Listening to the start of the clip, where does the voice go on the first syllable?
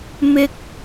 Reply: high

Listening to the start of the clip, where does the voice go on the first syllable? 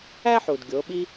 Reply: high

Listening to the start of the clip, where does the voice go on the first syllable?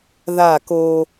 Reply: falling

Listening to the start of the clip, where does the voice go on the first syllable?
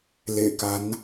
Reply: low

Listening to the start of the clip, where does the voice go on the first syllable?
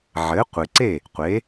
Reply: rising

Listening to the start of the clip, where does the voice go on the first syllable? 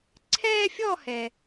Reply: high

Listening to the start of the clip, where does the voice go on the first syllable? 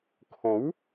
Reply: rising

